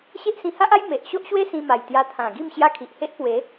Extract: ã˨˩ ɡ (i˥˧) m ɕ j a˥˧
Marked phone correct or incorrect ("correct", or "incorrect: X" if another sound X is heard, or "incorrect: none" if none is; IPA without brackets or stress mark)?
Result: correct